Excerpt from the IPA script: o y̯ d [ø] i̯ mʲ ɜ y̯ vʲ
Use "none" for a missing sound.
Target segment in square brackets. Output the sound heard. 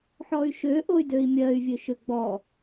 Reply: ø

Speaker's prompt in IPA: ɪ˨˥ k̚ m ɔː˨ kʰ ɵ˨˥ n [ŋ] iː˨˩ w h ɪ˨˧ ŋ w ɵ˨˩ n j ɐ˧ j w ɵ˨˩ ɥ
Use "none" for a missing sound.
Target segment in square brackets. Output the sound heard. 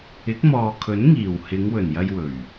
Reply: ŋ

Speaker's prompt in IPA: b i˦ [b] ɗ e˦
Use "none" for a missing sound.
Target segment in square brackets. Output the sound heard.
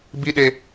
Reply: none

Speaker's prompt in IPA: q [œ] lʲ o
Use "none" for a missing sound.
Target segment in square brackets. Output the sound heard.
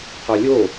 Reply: œ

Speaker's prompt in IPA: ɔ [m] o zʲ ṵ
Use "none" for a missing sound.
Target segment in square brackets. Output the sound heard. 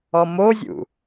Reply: m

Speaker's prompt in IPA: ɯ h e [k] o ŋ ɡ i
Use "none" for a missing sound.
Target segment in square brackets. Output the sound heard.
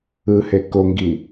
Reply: k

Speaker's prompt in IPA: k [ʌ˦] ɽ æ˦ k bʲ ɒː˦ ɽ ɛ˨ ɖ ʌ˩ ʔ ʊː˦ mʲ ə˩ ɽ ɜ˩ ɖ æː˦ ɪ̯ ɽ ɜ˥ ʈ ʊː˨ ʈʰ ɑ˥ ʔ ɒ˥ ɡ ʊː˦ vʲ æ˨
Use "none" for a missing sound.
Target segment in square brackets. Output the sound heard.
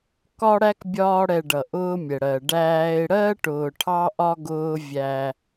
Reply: ɒ˦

